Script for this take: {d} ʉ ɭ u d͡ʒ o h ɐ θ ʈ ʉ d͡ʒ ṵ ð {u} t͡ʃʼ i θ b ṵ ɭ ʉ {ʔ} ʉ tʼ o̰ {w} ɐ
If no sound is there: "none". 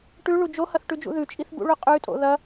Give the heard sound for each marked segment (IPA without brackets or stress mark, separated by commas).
ʈ, ʉ, qʼ, ð